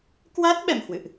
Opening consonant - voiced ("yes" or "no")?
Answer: no